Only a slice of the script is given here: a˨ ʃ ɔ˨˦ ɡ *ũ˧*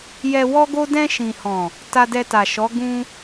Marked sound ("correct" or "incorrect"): correct